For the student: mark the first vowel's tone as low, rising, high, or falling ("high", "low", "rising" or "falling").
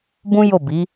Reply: high